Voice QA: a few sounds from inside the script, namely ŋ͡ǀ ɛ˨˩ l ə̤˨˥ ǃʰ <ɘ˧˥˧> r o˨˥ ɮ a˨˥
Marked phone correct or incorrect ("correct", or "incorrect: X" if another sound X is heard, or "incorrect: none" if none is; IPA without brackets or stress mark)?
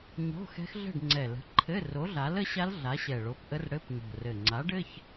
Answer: correct